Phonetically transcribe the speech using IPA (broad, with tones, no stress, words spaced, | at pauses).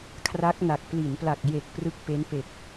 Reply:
kʰra˦˥k̚na˨˩k̚ pli˩˦npla˨˩k̚je˨˩k̚ prɯ˦˥k̚ pe˦˥npe˨˩k̚